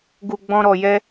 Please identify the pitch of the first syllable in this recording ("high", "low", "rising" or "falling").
low